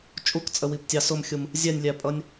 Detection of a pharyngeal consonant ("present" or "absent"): absent